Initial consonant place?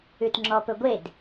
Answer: alveolar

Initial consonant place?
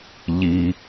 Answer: palatal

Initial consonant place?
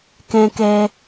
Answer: velar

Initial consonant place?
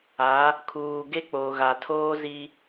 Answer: velar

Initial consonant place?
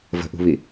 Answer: labial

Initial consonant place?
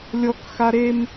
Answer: alveolar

